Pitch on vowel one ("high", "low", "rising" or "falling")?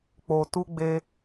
low